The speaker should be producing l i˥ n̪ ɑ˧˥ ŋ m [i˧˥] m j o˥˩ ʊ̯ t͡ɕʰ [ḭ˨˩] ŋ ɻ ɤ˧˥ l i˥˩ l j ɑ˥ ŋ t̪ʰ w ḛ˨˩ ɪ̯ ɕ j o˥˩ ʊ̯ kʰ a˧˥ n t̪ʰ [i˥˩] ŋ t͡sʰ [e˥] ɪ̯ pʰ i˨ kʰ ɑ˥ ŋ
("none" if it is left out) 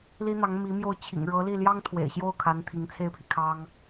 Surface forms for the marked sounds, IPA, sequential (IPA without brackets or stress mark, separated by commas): i˧˥, ḭ˨˩, i˧˥, e˥